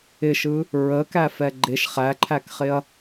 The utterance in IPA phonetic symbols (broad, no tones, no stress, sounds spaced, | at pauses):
ɪ ʃ ɯ | ɹ ə k æ f ɛ ɡ͡ǃ e ʃ χ æ ǃʰ æ k χ ɪ ɐ̯